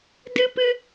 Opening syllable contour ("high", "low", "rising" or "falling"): high